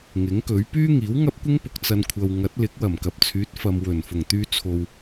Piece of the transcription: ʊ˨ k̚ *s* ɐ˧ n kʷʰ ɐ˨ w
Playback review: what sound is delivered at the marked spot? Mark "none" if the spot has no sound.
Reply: t͡s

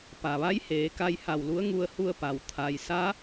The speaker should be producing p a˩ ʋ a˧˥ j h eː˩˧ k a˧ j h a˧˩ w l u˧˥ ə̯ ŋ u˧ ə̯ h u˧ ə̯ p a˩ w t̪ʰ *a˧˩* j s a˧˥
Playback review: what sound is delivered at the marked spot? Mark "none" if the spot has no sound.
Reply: a˩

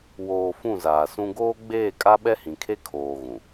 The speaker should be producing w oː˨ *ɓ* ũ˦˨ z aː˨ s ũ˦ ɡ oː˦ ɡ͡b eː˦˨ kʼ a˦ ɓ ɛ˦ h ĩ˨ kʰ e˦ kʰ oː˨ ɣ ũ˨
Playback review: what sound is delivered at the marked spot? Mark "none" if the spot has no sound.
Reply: f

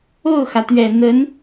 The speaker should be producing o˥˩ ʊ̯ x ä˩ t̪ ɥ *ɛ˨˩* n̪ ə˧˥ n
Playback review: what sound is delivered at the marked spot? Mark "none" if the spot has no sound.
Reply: ɛ˨˩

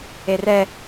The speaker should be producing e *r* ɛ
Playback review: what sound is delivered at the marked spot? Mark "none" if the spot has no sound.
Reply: r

